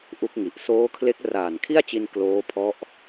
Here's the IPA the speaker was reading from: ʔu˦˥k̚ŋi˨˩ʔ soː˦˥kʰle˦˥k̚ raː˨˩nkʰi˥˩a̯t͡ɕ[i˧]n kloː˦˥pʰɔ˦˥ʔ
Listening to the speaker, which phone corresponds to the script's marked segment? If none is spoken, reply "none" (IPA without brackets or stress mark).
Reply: i˧